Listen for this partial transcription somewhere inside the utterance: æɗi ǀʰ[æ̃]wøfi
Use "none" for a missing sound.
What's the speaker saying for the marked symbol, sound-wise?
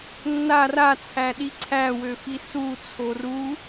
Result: æ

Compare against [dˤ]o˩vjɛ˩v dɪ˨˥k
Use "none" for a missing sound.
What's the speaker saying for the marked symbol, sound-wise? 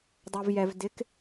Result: dˤ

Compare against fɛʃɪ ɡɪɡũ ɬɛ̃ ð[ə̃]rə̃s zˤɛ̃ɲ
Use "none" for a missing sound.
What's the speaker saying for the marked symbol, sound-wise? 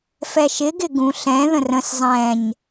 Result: ə̃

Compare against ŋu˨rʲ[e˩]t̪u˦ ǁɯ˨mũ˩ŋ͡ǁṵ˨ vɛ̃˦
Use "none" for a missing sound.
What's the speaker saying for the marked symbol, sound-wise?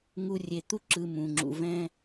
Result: e˩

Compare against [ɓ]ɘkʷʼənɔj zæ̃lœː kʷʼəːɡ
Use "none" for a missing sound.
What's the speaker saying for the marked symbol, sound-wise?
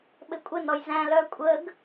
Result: ɓ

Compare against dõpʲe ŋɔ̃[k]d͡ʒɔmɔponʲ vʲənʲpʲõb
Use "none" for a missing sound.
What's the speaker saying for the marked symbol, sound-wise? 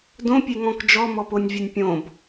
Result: k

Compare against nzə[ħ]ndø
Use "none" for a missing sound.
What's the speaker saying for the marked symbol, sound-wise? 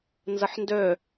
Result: ħ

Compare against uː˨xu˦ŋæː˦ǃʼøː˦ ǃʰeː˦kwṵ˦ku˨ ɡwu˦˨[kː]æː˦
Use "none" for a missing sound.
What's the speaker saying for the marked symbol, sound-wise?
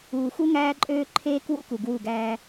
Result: ɡ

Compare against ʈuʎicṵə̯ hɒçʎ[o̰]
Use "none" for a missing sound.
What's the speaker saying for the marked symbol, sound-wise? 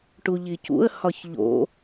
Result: o̰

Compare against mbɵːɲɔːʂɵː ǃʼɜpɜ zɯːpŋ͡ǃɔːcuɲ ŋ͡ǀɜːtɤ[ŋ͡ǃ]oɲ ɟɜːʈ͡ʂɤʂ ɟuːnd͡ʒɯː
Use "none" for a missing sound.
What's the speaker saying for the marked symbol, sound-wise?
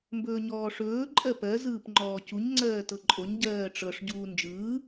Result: ǃʼ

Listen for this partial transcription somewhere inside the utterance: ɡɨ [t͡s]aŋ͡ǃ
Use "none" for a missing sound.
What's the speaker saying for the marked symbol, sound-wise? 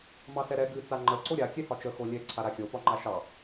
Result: t͡s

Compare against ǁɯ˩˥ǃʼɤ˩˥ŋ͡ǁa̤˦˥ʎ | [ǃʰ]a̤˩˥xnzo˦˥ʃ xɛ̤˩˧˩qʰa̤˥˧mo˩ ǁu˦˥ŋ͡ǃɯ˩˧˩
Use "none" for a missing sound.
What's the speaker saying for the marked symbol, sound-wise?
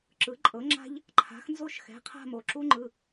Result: ǃʰ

